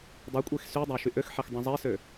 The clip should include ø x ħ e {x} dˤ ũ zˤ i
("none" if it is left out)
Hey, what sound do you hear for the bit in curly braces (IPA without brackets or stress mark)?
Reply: x